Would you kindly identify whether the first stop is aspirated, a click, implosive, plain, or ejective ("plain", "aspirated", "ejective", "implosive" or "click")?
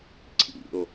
click